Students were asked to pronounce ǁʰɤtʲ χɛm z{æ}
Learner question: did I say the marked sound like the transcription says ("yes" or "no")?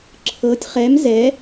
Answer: no